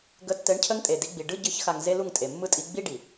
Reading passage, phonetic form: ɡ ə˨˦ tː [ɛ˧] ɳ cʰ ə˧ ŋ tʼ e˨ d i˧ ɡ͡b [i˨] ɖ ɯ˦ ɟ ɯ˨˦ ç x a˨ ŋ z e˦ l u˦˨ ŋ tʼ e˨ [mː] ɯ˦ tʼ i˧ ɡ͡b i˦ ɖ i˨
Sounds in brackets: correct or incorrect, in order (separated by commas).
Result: incorrect, correct, correct